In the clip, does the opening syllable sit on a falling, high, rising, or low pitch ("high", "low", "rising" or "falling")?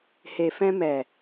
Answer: low